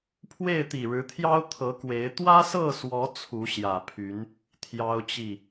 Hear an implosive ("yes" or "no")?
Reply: no